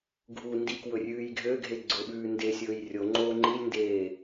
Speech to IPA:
ɡʱ u n d i k w ɵ rʲ ʉː j ɡʱ ø ɡʱ e ɡ͡ǀ ʊ ɓ ʉː n d e sʲ ɵː j rʲ o ŋ͡ǃ oː ŋ͡ǃ i lʲ n d eː

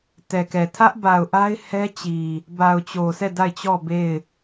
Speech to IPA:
t ɛ˨ k ɛ˨ tʰ ä˦ ʔ b a˨ ʊ̯ ʔ a˦ ɪ̯ h ɛ˦ t͡ɕ i˨ | b a˨ ʊ̯ t͡ɕ o˨ sʰ ɛ˦˨ d a˦˨ ɪ̯ t͡ɕ ɔ˦˨ b e˦˨ ɪ̯

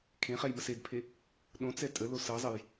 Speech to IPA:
kʰ ẽ χ ɛ j m ə s e d pʰ e | ɗ õ t͡s ɛ tʼ ə l o s ɤ zˤ ə j

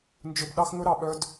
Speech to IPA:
n d͡ʒ ɵ˧ b ɗ ɑ˦ x ŋ ɵ˦ ɾ ɑ˧ ɓ œ˦ d

